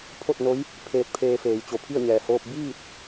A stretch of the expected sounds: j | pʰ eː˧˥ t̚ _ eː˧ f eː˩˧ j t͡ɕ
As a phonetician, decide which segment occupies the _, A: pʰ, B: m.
A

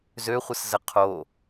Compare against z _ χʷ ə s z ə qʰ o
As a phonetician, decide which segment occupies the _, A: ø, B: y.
A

